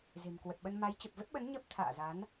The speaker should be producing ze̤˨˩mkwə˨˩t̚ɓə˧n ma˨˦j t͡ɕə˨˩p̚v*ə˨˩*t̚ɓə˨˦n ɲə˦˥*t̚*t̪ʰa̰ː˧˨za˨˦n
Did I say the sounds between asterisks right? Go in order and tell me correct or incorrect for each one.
incorrect: ə˦˥, incorrect: p̚

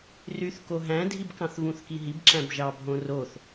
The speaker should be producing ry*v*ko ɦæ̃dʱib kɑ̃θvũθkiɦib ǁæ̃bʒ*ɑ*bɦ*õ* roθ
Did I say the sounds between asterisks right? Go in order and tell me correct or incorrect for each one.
incorrect: θ, correct, correct

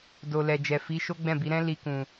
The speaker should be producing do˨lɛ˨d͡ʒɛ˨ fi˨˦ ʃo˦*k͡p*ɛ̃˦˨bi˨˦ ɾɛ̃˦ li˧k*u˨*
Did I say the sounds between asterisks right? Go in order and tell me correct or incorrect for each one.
incorrect: ɡ͡b, incorrect: ũ˨

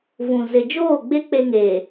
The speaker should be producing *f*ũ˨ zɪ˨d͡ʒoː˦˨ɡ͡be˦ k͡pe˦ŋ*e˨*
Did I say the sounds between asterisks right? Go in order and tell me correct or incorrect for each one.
incorrect: v, incorrect: eː˨

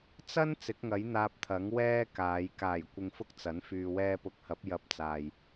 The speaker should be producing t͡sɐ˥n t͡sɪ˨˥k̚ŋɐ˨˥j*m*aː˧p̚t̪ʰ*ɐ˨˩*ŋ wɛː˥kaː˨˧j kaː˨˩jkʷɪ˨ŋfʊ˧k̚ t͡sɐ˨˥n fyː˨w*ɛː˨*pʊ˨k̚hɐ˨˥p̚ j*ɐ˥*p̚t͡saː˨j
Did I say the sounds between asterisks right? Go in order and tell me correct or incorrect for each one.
incorrect: n̪, incorrect: ɐ˨˥, incorrect: ɛː˧, incorrect: ɐ˧

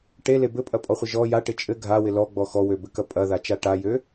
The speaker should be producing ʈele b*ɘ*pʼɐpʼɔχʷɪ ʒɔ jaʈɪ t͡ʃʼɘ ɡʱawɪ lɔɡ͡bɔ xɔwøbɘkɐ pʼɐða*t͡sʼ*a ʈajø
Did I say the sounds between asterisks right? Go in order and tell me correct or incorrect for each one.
correct, incorrect: t͡ʃ

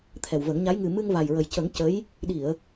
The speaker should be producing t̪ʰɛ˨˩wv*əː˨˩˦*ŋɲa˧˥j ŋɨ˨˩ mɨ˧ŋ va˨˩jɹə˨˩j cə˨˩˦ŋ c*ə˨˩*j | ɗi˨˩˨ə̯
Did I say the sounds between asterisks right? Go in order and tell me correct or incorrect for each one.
incorrect: ə˨˩˦, incorrect: ə˧˥

